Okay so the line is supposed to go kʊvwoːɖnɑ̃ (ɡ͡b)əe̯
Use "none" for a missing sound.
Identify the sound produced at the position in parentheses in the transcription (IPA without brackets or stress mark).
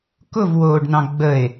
ɡ͡b